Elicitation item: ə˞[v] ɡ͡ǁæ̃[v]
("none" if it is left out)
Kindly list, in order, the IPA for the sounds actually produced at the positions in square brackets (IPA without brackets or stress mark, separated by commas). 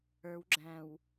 w, w